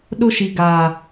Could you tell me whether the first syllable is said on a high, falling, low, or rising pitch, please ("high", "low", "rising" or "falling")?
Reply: high